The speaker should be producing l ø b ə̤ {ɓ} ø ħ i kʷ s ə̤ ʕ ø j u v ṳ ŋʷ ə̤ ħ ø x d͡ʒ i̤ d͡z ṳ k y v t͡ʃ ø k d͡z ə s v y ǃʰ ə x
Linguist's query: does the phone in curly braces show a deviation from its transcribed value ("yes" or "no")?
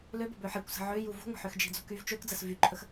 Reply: yes